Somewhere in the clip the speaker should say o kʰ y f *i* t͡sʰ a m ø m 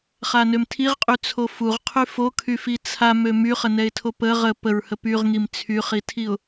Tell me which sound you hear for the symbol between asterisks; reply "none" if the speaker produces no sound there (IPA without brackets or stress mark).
i